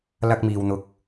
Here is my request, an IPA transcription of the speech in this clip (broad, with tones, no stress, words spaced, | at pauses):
lɐ˥k̚miː˧wn̪ʊ˧k̚